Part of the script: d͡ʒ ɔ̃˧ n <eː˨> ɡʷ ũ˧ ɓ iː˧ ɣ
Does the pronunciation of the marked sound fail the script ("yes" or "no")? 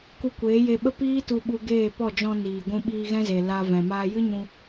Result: yes